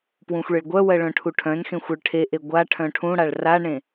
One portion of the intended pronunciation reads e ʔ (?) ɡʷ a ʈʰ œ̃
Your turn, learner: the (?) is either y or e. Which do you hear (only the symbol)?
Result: e